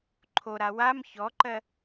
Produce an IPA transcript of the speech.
ǃʰoɾa wam çɔǃɜ

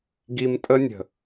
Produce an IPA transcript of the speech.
ɡi˧mtʼə˦ nʲə̤˨

